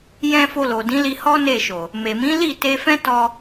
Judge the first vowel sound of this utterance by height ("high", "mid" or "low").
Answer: mid